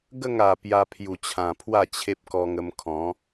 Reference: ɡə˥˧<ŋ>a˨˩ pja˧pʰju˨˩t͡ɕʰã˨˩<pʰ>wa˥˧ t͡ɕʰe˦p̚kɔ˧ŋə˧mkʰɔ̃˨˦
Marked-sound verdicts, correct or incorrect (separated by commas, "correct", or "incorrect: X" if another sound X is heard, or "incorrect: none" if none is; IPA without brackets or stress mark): correct, correct